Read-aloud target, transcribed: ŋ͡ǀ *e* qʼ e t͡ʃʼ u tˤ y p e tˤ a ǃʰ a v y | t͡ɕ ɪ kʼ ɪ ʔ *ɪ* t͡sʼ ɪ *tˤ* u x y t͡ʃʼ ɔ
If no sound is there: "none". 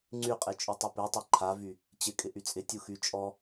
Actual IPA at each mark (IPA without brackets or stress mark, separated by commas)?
y, y, tʲ